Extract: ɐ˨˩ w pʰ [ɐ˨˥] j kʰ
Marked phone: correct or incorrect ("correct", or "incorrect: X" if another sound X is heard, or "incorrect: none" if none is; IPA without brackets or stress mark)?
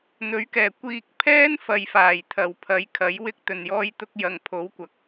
correct